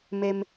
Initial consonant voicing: voiced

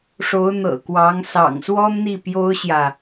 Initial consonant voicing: voiceless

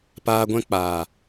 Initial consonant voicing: voiceless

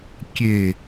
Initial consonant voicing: voiceless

